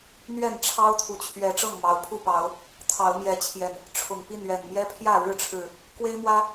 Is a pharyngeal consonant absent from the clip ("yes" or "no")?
yes